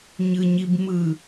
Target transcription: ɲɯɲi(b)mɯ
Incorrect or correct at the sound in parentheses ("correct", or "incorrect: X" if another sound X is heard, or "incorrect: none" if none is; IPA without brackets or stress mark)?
correct